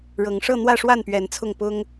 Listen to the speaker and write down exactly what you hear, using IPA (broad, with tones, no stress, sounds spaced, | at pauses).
ɻ ɤ˨˦ ŋ ʂ ɤ˥˨ n̪ w ä˥˨ ʂ w a˥˨ n p ɥ ɛ˨˦ n t͡sʰ ʊ˥˨ ŋ p ʊ˦ ŋ